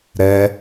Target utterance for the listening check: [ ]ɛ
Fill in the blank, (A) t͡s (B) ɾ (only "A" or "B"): B